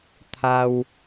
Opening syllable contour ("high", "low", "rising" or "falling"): low